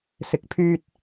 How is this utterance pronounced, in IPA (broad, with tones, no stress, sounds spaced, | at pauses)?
s ɪ˨ k̚ pʰ yː˧ t̚